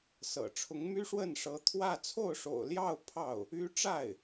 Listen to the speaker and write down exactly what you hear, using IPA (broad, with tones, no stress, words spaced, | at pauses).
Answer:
sɤ̰˨˩ ʈ͡ʂʰʊ˧˥ŋmy˥ʂwə˥˩nʂɤ˧˥ t̪ʰwä˥˧ t͡sʰo˥˩ʊ̯ʂo̰˨˩ʊ̯ljɑ˥˧ʊ̯ pʰɑ˥˩ʊ̯ | y˥ ʈ͡ʂa˥˩ɪ̯